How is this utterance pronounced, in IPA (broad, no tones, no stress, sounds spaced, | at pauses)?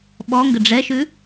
ɓ ɔ ŋ ɡ ə ɖ͡ʐ ɛ ʃ ʉ